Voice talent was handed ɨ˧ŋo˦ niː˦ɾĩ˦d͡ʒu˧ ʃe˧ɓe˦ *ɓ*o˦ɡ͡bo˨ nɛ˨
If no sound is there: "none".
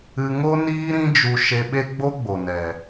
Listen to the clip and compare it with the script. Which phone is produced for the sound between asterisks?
ɡ͡b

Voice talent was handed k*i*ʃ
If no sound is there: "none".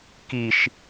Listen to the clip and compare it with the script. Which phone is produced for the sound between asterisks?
i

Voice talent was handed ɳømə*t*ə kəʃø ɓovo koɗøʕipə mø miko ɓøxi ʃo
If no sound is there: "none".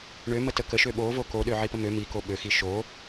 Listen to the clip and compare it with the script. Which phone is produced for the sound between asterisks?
t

